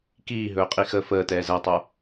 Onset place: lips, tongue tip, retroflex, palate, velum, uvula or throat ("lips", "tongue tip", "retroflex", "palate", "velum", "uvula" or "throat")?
velum